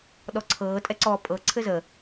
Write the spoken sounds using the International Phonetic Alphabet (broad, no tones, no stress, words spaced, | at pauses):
ɗɔǀʰɤː tʼɛǀɔːpʼɤ ǀʰɘzə